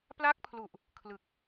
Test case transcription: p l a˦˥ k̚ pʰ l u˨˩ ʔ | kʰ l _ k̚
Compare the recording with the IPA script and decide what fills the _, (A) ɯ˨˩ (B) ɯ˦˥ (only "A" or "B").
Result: A